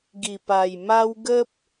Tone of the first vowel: low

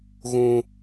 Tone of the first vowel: high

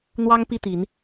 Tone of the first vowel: high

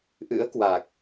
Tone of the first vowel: rising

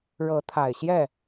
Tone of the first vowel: rising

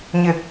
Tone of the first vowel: low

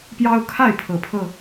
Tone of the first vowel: high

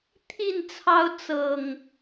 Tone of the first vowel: falling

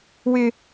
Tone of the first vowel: high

